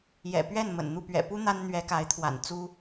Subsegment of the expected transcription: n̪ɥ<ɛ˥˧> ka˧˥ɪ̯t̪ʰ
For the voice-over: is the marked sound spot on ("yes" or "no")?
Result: no